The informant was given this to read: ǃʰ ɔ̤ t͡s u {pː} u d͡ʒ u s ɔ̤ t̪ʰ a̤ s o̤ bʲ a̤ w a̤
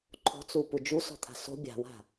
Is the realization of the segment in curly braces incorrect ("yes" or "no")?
yes